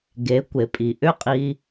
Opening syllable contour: rising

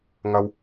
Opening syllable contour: low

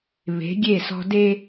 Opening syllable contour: rising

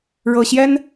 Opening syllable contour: low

